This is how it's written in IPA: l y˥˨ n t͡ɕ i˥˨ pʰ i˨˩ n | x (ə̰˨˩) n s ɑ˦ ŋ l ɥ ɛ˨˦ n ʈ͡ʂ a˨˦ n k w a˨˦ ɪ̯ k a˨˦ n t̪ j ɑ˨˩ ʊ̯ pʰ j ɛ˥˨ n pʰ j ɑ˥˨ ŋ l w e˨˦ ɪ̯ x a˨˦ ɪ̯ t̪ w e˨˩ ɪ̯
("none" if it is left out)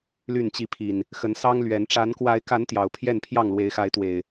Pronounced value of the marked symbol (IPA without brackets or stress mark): ə˨˦